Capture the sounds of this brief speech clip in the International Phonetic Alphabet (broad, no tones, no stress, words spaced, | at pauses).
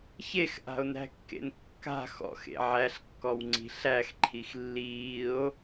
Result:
çexʔa̤o̯næ̤kːḛn kːa̤ xɔ̰xḛ ʕæɬkːɔwŋ͡ǀi̤ ɬæxǃʰix lːiːo̯